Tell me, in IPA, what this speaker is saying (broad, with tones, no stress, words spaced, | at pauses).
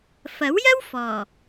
fɐ˨˥wjɐ˥w fɔː˨˩